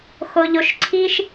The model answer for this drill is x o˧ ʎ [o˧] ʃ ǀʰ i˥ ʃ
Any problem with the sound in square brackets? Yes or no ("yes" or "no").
no